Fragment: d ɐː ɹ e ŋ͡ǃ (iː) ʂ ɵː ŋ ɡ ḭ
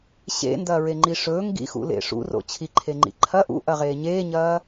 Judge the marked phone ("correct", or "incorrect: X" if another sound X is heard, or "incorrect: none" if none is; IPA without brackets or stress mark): incorrect: i